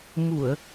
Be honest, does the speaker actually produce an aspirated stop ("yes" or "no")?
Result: no